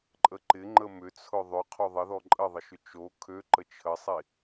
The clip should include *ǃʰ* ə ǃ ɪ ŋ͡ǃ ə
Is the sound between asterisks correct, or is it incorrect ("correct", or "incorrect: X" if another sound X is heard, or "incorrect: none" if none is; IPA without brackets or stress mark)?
incorrect: ǃʼ